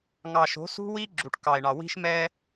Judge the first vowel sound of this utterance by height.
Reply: low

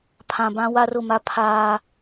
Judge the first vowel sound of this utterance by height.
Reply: low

